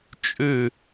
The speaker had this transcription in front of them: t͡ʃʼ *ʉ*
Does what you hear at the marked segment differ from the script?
no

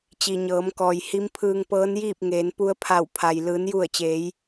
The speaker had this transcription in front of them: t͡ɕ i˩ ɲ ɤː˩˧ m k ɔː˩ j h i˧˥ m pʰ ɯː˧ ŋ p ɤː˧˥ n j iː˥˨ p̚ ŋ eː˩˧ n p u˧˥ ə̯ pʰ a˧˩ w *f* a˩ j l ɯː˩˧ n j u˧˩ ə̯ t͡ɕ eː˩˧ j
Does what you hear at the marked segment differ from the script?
yes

